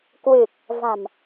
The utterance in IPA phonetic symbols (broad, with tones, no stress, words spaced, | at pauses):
kwɨ˨˩k̚ | va̤˨˩m